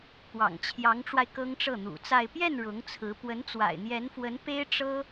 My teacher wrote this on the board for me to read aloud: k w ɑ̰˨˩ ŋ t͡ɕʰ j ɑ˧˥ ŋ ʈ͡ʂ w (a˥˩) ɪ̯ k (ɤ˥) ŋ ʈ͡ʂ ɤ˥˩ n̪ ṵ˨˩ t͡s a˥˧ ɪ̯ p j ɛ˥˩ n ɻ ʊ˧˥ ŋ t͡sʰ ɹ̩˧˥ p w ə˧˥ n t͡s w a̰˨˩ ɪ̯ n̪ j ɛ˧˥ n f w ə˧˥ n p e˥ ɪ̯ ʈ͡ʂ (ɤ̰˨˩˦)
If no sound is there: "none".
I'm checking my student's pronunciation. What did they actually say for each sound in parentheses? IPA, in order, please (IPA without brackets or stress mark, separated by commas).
a˧, ɤ˥, ɤ˥